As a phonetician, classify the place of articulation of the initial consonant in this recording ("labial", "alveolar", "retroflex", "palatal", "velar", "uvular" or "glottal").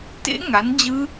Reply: alveolar